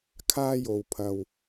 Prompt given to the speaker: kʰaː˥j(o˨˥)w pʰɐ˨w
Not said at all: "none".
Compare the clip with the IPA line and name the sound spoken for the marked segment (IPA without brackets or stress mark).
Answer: o˨